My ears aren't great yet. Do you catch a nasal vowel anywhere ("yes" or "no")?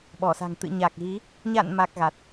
no